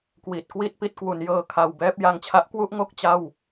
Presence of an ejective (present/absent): absent